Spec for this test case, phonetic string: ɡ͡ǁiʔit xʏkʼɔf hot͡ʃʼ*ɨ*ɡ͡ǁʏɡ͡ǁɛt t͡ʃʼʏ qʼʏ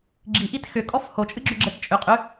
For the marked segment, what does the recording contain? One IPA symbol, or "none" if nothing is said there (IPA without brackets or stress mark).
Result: ɨ